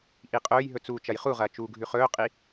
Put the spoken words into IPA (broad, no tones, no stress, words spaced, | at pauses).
ʔiqʼɵːjɦɵ t͡suːt͡ʃɐjχuʁɐː t͡ʃuːɡʱʉχɵːqʼi